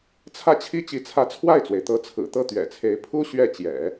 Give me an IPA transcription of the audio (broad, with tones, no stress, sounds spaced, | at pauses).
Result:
t͡sʰ ä˥˩ t͡ɕʰ i˥ t͡ɕ i˧˥ t͡sʰ ä˧˥ t͡sʰ w a˥˩ ɪ̯ t͡s w e˩ ɪ̯ t̪ ɤ˧˥ t͡sʰ ɹ̩˨˩ t̪ ɤ˥˩ t̪ ɥ ɛ̰˨˩ t͡sʰ e˧˥ ɪ̯ pʰ u˥ ɕ ɥ ɛ˥˩ t͡ɕ j ɛ̰˨˩˦